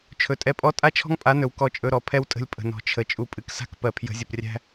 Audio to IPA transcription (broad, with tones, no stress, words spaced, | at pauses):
t͡ʃʰɵ˨tʼɛ˧pʼɔ˦ tʼa˦t͡ʃʰɔ̤˦ŋpʼa˨˦nɵ˨w kɔ˧t͡ʃʼɵ˧ ɾɔ˨pʰɛ˦wtʼə̤˧lʲ pʼə̤˨nɔ̤˨t͡ʃʰə˨ t͡ʃʼu˨pʼɨ˨ksa̤˦k pɜ˨pʰjə̤˨˦zʲə˨prʲæ̤˦